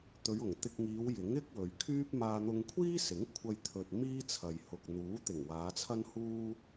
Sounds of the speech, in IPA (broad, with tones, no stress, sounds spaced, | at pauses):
t̪ ɵ˨˧ ɥ ʊ˨˩ ŋ t̪ ɪ˧ k̚ ŋ iː˨˧ w j ɪ˨˥ ŋ ɪ˥ k̚ w ɵ˨ ɥ kʰ yː˥ p̚ m aː˧ n̪ ʊ˧ ŋ kʷʰ iː˥ s ɪ˨˥ ŋ kʷʰ ɐ˧ j t̪ʰ ɵ˨ t̚ m iː˥ t͡sʰ ɐ˨ j h ʊ˨ k̚ n̪ uː˨˥ t̪ ɪ˨˩ ŋ w aː˨˧ t͡sʰ ɐ˥ n h uː˥